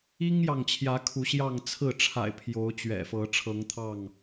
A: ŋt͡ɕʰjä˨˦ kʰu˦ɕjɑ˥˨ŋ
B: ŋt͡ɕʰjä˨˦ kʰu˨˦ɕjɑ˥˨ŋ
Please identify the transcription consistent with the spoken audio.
B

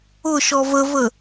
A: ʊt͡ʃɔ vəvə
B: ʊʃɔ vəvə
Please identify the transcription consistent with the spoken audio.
B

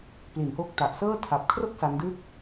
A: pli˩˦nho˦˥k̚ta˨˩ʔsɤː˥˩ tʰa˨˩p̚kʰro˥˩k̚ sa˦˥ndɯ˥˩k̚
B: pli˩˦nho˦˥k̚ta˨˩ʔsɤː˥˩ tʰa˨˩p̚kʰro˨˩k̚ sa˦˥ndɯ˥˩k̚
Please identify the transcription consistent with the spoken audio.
A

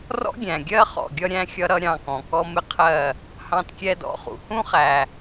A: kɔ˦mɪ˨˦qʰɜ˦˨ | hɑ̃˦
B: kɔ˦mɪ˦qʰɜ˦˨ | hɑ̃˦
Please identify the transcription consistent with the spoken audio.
B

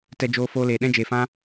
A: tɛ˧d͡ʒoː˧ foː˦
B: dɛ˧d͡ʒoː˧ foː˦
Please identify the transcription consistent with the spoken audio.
A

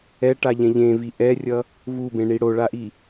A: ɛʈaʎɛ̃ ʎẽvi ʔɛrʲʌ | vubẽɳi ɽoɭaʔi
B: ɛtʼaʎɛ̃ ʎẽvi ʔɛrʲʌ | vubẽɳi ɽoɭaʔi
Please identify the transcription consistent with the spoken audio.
A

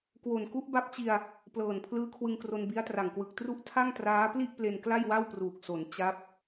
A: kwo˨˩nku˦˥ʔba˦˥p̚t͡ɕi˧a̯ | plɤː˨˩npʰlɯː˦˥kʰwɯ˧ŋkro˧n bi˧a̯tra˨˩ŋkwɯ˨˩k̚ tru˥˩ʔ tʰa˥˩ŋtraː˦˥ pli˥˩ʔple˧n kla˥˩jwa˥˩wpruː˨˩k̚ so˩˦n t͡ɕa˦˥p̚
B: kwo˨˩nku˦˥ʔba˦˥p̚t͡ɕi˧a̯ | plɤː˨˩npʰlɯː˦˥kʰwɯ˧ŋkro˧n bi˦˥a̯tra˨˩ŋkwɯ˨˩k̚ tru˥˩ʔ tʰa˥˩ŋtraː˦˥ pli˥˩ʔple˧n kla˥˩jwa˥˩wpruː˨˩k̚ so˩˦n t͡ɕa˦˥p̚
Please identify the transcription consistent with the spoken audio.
B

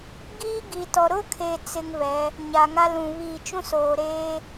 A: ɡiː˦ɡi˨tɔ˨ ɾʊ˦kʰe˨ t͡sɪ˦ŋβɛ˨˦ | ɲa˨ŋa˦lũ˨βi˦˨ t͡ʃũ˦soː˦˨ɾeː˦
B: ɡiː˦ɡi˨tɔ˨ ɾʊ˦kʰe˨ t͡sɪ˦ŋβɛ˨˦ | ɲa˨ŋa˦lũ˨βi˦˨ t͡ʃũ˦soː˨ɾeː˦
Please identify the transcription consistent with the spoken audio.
B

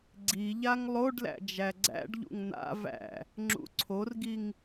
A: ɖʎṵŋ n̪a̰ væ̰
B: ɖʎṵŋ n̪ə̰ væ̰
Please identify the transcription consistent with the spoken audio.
A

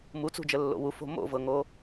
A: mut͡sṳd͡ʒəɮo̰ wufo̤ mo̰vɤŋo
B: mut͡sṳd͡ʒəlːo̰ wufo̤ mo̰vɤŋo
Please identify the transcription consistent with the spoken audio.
B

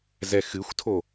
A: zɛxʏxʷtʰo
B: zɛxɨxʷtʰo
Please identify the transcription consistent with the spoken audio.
B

